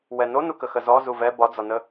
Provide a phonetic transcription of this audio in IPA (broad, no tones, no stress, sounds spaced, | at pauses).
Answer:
w ɛ n o n u k ə x ə z ɔ z u v ɛ b ɒ d͡z ɒ n ə